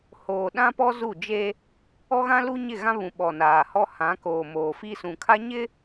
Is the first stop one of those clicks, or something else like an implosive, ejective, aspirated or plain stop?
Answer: implosive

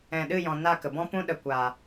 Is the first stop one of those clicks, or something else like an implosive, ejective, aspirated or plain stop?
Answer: implosive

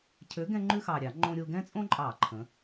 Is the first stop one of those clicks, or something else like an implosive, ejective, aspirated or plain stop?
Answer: aspirated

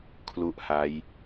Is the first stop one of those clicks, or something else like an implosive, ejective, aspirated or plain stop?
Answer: aspirated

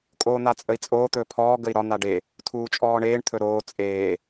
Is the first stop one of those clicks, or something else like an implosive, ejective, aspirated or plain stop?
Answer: ejective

